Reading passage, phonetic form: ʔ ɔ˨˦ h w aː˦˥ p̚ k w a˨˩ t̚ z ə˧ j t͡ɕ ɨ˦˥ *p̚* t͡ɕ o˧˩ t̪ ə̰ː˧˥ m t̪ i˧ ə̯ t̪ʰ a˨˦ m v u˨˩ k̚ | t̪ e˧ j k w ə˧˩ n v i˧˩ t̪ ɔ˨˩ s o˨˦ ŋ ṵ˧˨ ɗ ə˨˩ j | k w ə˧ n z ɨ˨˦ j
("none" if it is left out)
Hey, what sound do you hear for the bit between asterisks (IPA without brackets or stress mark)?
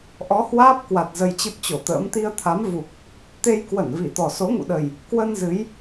p̚